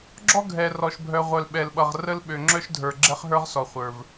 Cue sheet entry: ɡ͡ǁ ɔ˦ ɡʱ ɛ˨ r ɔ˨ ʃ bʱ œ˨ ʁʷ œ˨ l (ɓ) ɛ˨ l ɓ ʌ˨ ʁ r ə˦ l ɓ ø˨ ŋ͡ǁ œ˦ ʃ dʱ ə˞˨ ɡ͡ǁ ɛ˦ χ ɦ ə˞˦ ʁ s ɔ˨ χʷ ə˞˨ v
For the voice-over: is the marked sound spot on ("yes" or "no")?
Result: yes